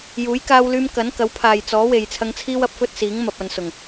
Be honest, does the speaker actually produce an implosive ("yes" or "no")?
no